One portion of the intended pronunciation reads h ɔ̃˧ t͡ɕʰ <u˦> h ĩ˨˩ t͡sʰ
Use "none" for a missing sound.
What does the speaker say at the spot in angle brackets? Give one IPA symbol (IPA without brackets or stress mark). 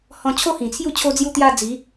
o˦